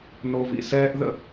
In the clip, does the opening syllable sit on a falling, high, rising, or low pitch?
low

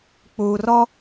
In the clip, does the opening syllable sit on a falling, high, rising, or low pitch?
low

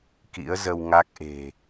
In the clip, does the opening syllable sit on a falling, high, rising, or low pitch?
rising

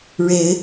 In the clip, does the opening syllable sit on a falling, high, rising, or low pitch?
rising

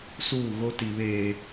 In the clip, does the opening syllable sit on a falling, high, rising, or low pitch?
falling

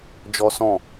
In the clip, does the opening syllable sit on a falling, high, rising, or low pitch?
high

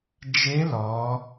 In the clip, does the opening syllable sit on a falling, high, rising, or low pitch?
rising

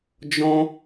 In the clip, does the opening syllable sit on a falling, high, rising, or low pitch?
high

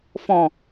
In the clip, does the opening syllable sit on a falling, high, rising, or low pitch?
low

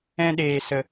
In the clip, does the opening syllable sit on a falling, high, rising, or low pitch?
high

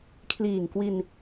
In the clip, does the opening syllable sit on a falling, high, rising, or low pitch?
low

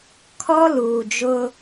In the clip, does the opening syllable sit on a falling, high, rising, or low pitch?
high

